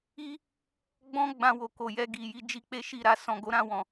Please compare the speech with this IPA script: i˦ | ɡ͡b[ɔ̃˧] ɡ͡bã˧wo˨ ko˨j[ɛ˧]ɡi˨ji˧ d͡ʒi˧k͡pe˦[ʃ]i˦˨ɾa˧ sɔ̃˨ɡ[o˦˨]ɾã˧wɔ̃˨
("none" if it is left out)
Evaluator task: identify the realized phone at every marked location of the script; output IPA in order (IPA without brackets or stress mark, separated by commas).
ɔ̃˦, ɛ˧, ʃ, o˨˦